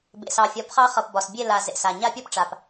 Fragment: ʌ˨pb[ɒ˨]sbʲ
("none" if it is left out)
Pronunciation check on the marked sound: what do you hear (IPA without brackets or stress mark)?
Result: ɒ˨